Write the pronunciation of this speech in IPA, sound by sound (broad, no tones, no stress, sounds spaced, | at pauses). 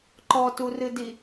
ǃ ɔ t u r ɨ d i